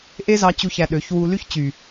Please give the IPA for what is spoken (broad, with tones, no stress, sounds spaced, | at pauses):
ʔ e˦ z ɑ˧ t͡ɕ u˧ ç æ˧ ɗ ø˨˦ ç w u˧ l y˦ ç t͡ɕ y˨